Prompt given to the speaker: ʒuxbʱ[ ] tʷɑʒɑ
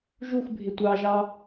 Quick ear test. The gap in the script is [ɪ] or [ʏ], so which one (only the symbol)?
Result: ɪ